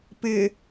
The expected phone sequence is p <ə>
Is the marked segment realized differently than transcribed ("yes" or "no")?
yes